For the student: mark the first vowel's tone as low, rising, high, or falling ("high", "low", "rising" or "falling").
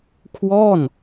falling